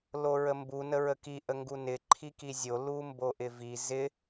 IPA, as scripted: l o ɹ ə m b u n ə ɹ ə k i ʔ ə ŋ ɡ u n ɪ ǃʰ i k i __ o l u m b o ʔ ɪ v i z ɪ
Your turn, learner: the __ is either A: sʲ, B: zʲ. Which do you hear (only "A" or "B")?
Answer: B